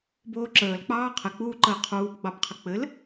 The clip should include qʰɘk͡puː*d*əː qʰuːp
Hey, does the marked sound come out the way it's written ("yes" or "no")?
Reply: no